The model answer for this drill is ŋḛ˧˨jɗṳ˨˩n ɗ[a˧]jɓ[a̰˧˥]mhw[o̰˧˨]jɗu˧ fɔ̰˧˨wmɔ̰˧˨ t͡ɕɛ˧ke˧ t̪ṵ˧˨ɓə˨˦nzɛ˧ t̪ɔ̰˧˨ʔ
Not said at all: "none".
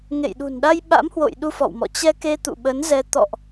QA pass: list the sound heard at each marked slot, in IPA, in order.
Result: a˧, a̰˧˥, o̰˧˨

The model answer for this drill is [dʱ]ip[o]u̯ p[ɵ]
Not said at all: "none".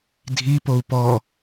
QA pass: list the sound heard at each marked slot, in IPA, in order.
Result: dʱ, o, ɔ

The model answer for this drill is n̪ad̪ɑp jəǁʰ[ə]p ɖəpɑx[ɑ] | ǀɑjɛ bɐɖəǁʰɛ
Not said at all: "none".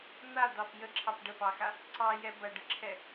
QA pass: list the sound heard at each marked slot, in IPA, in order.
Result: ɑ, a

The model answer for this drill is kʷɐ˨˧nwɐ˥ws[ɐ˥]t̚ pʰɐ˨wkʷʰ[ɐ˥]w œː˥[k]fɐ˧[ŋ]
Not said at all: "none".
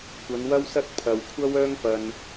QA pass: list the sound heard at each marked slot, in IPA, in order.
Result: ɐ˥, ɐ˥, ŋ, n

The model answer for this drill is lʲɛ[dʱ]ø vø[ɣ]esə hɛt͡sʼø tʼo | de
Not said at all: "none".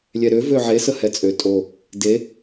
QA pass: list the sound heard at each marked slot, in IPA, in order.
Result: ɾ, ʕ

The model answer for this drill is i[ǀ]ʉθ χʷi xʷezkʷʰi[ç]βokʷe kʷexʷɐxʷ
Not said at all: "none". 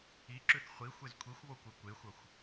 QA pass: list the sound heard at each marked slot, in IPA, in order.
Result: ǁ, xʷ

